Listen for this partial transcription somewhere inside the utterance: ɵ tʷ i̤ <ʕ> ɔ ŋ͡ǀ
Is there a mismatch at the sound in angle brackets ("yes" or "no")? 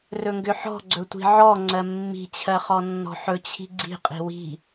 no